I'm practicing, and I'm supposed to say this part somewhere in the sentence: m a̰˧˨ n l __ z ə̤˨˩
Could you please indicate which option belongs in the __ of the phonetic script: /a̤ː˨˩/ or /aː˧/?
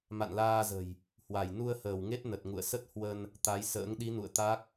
aː˧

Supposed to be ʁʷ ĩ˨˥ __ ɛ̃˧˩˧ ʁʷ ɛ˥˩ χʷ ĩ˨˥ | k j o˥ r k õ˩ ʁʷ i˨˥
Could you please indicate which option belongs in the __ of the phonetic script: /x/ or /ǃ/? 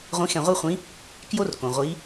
x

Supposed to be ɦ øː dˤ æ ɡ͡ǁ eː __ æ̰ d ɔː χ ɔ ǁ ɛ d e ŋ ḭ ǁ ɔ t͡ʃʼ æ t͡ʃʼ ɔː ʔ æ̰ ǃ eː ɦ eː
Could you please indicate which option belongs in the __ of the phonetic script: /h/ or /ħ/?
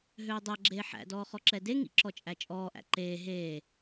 ħ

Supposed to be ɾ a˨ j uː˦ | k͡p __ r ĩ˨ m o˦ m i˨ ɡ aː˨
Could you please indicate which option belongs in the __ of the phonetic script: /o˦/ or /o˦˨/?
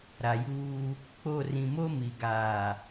o˦˨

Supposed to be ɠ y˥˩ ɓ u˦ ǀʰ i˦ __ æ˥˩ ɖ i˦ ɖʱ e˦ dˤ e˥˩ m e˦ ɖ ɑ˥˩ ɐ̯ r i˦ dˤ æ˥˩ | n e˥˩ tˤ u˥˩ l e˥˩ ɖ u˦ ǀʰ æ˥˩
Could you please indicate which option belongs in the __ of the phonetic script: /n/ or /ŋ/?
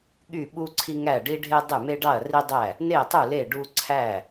ŋ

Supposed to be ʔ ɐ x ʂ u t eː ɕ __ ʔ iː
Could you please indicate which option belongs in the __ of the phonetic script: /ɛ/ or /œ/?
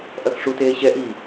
ɛ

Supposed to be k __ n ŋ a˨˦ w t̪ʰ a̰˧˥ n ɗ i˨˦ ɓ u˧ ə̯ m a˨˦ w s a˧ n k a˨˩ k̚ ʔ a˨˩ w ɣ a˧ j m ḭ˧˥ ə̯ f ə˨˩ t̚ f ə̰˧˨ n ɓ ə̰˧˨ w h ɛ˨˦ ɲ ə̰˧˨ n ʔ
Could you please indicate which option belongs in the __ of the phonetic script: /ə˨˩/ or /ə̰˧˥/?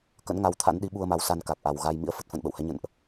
ə̰˧˥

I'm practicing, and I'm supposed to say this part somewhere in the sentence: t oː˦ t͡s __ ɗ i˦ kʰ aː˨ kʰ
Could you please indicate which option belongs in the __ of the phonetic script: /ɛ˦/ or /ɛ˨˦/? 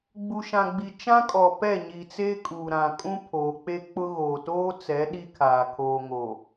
ɛ˨˦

